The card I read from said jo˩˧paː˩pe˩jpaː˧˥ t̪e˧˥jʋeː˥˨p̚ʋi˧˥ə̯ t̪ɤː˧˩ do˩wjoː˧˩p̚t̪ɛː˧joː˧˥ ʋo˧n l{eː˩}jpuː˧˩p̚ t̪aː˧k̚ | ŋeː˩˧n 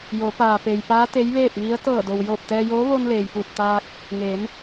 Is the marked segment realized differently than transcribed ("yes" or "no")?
no